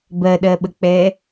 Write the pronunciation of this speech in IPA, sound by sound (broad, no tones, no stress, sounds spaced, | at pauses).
b ɜ ɗ ɜ ɓ ə k͡p ɛ